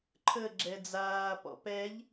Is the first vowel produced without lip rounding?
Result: yes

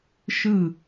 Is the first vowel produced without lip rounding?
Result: yes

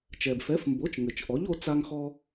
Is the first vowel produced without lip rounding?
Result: yes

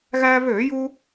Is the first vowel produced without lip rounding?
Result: yes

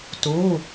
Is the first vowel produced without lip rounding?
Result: no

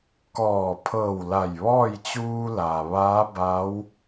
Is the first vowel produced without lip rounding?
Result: no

